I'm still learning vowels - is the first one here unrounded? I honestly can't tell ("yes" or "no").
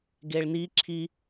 yes